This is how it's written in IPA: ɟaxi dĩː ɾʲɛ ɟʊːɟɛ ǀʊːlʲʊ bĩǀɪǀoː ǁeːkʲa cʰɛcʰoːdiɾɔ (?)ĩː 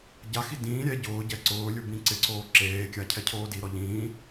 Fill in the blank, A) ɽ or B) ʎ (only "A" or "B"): B